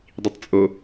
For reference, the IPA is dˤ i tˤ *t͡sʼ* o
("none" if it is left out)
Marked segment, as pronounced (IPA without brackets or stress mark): t͡sʼ